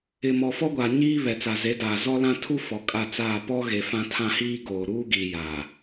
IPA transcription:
ɪ˨ m ɔ˨ f ɔ˦ ɡʷ aː˨ ɲ iː˦ β ɛ˨ t͡s a˨ z e˨˦ d aː˨ z ɔ˦ l ã˦ tʰ u˦ f ɔ˨ kʼ a˦˨ t͡s aː˦˨ p ɔ˦ ɣ e˨ f ã˦ tʰ ã˦ h iː˦ ɡ oː˨ ɾ uː˦ ɡ iː˨ j aː˨

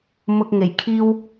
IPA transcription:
m ʊ˧ k̚ ŋ e˨˩ j kʰ iː˥ w

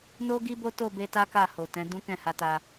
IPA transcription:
n o˦ ɡ i˦ b o˦ t o˦˨ b e˧ t a˦ k a˦˨ h o˨ t ɛ̃˨˦ d ũ˦ k ɛ̃˦˨ h a˧ t a˧

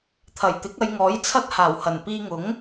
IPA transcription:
t̪ʰ ɐ˨˩ j t̪ ɪ˨˥ k̚ ɐ˨˧ j ŋ ɔː˨˥ j t͡sʰ ɐ˥ t̚ h aː˨˩ w h ɐ˨˩ n p iː˧ ŋ ʊ˨˥ ŋ

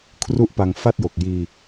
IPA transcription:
kʰ r u˥˩ ʔ p a˧ ŋ f a˥˩ t̚ j o˨˩ k̚ j iː˧

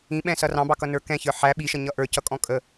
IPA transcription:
ĩ ɓ ɛ̃ s ʌ r ɑ̃ b ɑ k ʌ n ə˞ k ɛ̃ ç ə˞ ħ æ ɓ i ʃ ʌ ɲ ʌ ʔ ə˞ c ʌ kʼ ɔ̃ kʼ ə

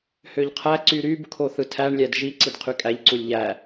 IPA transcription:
h ø ʎ qʰ æ ǀ y ɾ y b kʰ o θ ɯ tʰ æ ɳ lʲ æ d ʒ i ǀ i d qʰ y kʼ æ ʎ ǀ u lʲ ʎ æ

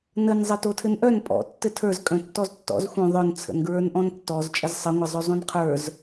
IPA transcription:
n ə n zˤ ɘ t o tʰ ɘ n ʔ œ n pʼ ɔ̰ tː ɘ tʰ ə˞ z kʼ œ̃ tː ɔ z tː ɔ̰ z xʷ œ̃ ðˤ œ n t͡sʰ ə̰ n ɡ ɹ ə˞ n ʔ ɔ̃ n tː ɔ z t͡ʃʼ ə z sˤ ɘ ŋʷ ɘ zˤ ɵ zˤ õ n qʰ ə˞ z

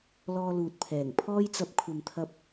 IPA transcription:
l ɔː˧ l uː˨ t̚ pʰ ɛː˨˩ ŋ pʰ ɔː˥ j t͡s ɐ˧ p̚ kʷʰ ɐ˨ m t̪ʰ ɐ˧ p̚

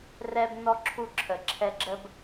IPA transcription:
r ɛ˦ b n ɔ˦ ǁʰ u˦˨ ǁʰ ə˨ ǁʰ ɛ˦ ɡ͡ǁ ə˦ b

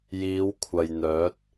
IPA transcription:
j iː˨˧ w kʷʰ ɐ˨ j n̪ œː˨˥ t̚

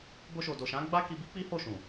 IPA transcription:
b o˧ ʃ o˨ d o˨ ʃ ã˨˦ ɡ͡b a˦ k i˧ b i˦ k͡p i˦ h o˦˨ ʃ ũ˨

